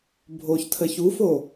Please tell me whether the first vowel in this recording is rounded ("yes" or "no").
yes